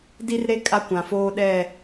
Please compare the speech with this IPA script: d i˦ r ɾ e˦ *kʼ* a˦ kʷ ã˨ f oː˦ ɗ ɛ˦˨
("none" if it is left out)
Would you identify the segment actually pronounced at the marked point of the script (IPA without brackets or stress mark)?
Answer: kʼ